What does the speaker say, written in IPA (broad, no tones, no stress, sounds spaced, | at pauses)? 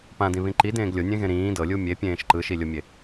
p ã d ĩ β ĩ ǃ i d ẽː ɡ lʲ o nʲ ẽ ɣ ẽ ɾ ĩː d ɤ lʲ u mʲ e pʲ ẽː ʃ ǃ ɯ ʃ i lʲ o mʲ e